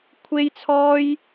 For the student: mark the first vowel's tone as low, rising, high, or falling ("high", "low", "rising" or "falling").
high